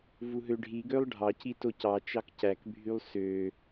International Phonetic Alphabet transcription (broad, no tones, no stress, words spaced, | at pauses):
vuɦøɖʱi ɡølˠɖʱɑ citocɑ t͡ʃɑkcæk bʱylˠsø